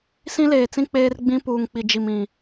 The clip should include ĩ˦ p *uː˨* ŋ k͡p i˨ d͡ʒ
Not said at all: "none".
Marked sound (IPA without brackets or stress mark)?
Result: uː˨